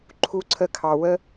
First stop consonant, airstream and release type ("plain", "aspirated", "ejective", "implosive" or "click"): click